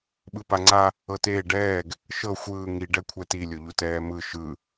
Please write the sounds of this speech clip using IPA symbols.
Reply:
ɓ ɯ p a ŋ͡ǀ a | ɤ t eː ɖ ɛː ɡ | ʃ ɤ xʷ ɯː ŋ i ɖ ɛ kʷʰ ɛ t i lʲ o ʎ u t ɛː m ɯ ʃ ɯ

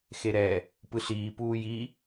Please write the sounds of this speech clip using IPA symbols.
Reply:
x e ɾ ɛ | p ɯ ɬ iː p uː j i

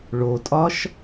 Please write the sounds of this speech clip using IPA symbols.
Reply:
ɭ o tʼ ɒ ʃ

